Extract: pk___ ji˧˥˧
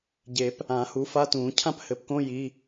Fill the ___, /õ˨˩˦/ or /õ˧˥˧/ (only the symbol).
õ˧˥˧